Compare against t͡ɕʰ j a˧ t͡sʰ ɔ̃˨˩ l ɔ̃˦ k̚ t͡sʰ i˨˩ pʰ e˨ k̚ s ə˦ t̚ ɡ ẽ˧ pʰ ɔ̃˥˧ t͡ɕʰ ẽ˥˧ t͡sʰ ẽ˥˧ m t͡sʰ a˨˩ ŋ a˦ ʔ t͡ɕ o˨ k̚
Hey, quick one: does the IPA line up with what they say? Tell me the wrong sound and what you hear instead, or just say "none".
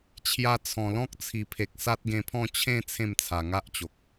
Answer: ə˦ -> a˦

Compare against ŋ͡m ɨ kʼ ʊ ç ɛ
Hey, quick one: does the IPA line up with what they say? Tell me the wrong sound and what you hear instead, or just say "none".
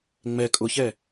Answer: ɨ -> ɛ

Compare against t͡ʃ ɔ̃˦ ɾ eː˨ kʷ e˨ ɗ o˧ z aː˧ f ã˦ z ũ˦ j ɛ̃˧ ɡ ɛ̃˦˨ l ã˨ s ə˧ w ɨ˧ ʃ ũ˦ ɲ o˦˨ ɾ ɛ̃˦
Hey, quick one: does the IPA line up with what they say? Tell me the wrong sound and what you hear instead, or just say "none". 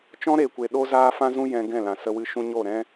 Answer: none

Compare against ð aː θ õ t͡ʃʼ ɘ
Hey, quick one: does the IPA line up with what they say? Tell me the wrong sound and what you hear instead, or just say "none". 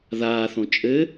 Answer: none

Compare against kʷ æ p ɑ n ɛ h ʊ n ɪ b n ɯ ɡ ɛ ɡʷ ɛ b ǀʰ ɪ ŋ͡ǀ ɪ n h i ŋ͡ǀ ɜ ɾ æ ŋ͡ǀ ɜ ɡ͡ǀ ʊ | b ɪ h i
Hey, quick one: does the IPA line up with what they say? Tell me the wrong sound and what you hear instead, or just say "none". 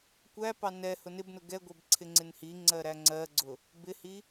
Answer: ɯ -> ʊ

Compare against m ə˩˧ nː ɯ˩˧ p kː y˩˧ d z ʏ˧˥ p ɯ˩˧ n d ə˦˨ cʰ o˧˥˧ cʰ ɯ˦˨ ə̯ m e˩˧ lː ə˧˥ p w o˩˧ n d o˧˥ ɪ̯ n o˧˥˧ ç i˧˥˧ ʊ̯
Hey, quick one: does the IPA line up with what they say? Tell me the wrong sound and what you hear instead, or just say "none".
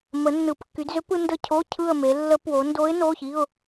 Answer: none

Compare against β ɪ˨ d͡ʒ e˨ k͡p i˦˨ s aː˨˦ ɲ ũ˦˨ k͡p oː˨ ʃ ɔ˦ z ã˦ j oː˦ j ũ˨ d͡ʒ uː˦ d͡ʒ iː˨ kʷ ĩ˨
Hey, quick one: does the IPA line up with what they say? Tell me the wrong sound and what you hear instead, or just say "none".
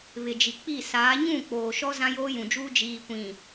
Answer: e˨ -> i˨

